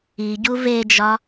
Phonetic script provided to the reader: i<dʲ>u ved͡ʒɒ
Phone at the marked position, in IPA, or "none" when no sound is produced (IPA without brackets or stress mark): ɟ